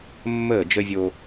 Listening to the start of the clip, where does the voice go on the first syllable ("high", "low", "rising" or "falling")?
falling